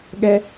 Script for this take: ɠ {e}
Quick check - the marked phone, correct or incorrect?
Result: incorrect